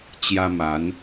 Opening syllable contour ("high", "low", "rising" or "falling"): high